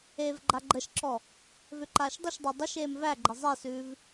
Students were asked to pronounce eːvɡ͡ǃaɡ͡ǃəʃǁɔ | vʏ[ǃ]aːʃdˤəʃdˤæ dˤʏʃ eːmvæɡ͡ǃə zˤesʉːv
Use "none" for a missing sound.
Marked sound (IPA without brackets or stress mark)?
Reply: ǃ